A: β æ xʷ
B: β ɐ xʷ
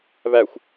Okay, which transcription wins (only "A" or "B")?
A